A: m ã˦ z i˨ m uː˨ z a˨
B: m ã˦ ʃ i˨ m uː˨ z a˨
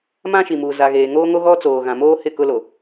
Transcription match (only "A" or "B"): B